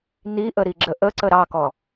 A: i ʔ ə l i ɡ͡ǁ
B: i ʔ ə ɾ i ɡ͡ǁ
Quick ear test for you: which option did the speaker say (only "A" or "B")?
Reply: B